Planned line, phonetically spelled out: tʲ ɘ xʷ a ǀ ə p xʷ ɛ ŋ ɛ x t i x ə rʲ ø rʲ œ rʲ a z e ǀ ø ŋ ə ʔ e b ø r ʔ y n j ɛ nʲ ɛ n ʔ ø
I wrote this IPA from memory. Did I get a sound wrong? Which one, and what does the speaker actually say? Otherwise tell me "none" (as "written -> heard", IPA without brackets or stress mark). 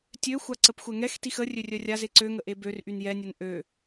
ɘ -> ø